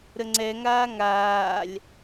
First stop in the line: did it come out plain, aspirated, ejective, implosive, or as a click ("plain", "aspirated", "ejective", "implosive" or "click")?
click